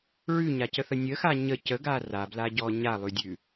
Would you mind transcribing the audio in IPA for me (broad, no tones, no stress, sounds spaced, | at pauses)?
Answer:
ɹ ʉ ɲ a c ə θ ə nʲ ə x a ɲ ə c ə ɡ a r a b l a ɟ ɔ ɲ a lˠ ʉ dʲ ʉ